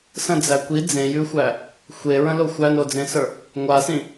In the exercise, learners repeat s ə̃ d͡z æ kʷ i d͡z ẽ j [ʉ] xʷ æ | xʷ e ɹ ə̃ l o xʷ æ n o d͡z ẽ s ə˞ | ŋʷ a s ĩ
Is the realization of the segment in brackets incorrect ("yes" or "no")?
no